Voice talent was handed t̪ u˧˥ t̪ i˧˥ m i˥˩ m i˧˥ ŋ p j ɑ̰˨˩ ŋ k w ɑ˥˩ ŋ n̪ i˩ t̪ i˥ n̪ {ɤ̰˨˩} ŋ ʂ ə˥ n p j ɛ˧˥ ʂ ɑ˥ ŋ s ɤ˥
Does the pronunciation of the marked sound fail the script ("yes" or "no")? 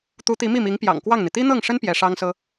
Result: yes